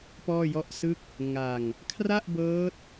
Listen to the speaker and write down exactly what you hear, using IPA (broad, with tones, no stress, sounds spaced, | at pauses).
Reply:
p ɔː˥˩ j ɔ˥˩ ʔ s ɯ˥˩ k̚ | ŋ a˧ ŋ | kʰ r a˥˩ ʔ b ɤː˦˥ t̚